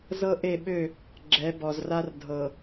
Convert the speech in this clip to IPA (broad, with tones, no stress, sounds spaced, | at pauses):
z ɤ˦ ʔ e˦˨ ɓ ø˦˨ | ɡ͡ǁ ɛ˨˦ b ɔ˨ z r a˦ r dʱ ɤ˨